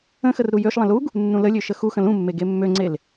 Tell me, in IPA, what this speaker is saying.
ə̃ x ə r ɾ u j ø ʃ lˠ ə̃ l u ɡ | nː ũ l ə lʲ ø ʃ ə x u x ə̃ l ũ mː e ɡ e mː ø ŋ͡ǀ e l

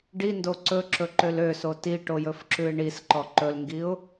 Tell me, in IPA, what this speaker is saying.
ɖ i n d o ǀ ɵ ǁ ɵ ǃ ø l ø s o t i ʈ o j ɵ f ǁ ʉ ɪ̯ ɳ i s ǃ ɔ ǃ ɵ l ŋ ɡ i ʊ̯

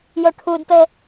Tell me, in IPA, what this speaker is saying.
j o ʈʰ u d t ɤ

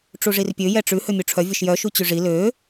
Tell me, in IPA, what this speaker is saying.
ʈ͡ʂ u ʐ i r pʲ ø j ɛ ʈ͡ʂ ʉ h ø mʲ u ʈ͡ʂʰ œ vʲ ɔ ʃ j œ ʃ u t͡ɕ y ʐ i l ø

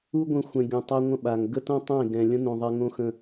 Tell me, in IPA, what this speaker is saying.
u˦ ɡʷ ə̃˧ xʷ ɛ̃˨ ɡʲ õ˨ tˤ a˧ ŋʷ ə̃˦ ɓ a˨ ŋ ɡ ə˦ t õ˦ tˤ ẽ˦˨ ɡ ɛ̃˨ lʲ ə̃˦ n õ˨ ðˤ ɛ˧ ŋ õ˦ x ə̃˦˨

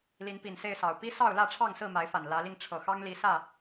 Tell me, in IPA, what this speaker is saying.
l i˨˦ n p i˨˩ n s e˥˨ ɪ̯ s ɑ˨˩ ʊ̯ p i˦ s ɑ˥˨ ʊ̯ l ä˥˨ ʈ͡ʂʰ ɑ˥˨ ŋ s ɹ̩˥˨ m a˨˦ ɪ̯ f a˨˩ n l ä˨˦ l i˧ ŋ ʈ͡ʂʰ ɤ˨˩ x ɑ˦ ŋ l i˨˦ s ä˥˨

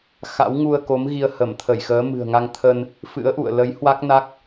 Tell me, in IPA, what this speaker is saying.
x a̰˧˥ w ŋ u˧ ə̯ k o˨˦ m ɣ i˧ ə̯ h ə˧˩ m t̪ʰ ə˧˩ j x əː˨˦ m ɨ̤˨˩ ə̯ ŋ a˧ ŋ t̪ʰ ə˧ n | f ɨ̰˧˥ ə̯ ʔ ṵ˧˨ ə̯ l ə˨˦ j h w a˦˥ k̚ n a˦˥ k̚

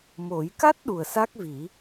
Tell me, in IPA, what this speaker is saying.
m o˨˩˦ j k a˦˥ t̚ ɗ u˨˩ ə̯ s a˦˥ k̚ v i˨˩˦

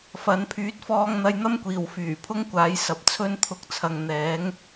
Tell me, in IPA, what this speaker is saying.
f ɐ˨˥ n pʰ yː˨˥ t̚ f ɔː˧ ŋ n̪ ɐ˧ j n̪ ɐ˥ m kʷ iː˨˩ w f yː˨˩ pʰ ʊ˥ ŋ kʷ aː˨˥ j s ɐ˨ p̚ t͡sʰ ɵ˥ n t̪ʰ ʊ˧ k̚ t͡sʰ ɐ˨ ŋ n̪ ɛː˨˥ ŋ

